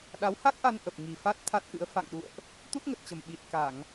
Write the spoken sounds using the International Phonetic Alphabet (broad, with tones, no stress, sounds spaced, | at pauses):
ɗ a˨˦ w h a˦˥ k̚ ʔ a˧ n ʔ ə˨˩ p̚ ŋ i˨˩ f a˦˥ t̚ t̪ʰ a˦˥ t̚ ʔ ɨ̰˧˥ ə̯ f a̰˧˨ ŋ ɗ ṵ˧˨ ə̯ ʔ | t̪ u˦˥ t̚ ŋ ə˨˩ t̚ t͡ɕ ə˨˩ m ɓ i˨˩ t̚ k a˧˩˨ ŋ